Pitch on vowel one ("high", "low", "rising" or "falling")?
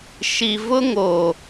low